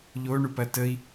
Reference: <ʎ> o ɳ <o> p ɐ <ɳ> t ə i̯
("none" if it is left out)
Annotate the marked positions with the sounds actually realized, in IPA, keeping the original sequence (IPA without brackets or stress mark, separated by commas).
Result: ʎ, u, none